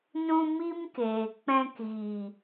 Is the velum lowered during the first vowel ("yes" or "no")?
yes